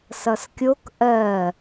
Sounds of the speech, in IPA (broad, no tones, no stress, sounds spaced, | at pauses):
s ʌ s kʲ o k ʔ ɜ